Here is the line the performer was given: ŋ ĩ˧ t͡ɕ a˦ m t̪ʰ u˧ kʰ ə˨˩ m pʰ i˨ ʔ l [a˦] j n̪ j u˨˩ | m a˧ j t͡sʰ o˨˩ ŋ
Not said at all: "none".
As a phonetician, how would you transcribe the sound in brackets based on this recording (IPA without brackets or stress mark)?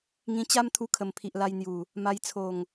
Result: a˧